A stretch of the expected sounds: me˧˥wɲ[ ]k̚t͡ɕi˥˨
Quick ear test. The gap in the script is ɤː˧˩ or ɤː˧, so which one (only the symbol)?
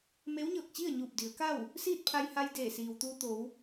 ɤː˧˩